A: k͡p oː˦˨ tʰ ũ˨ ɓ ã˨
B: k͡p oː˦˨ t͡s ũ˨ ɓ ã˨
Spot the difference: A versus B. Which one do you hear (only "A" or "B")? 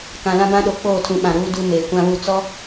A